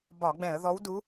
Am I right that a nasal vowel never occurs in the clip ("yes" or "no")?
no